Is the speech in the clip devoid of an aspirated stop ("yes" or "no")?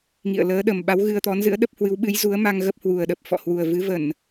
yes